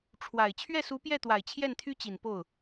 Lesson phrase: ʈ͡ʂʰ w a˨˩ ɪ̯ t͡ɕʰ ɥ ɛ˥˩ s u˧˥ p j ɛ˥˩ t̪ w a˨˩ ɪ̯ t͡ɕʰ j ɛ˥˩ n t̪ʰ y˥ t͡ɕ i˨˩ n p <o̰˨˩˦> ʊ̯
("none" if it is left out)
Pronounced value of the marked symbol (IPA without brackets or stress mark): o˥˩